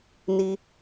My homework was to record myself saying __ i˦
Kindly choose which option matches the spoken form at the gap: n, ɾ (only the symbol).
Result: n